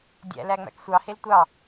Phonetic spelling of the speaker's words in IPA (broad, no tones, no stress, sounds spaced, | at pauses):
dʲ æ̰ l æ ŋ͡m æ̰ k sʷ ɑ h e l tʷ ɑ